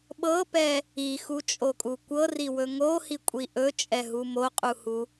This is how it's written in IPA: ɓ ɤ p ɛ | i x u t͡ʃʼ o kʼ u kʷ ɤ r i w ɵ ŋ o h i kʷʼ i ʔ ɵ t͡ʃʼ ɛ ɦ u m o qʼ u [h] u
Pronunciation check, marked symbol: correct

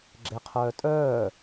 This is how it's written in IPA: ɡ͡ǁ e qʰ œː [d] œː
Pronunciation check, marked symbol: incorrect: tʼ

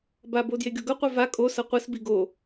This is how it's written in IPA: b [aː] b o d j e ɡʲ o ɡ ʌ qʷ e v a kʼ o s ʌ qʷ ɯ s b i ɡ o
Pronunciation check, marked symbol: incorrect: a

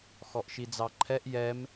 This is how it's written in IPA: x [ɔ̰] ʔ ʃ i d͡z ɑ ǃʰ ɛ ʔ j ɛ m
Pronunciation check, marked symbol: incorrect: ɔ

